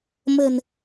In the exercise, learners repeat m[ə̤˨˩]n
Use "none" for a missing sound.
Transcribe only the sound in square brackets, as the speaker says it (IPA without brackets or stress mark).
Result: ə̤˨˩